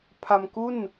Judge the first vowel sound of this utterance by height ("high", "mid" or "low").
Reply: low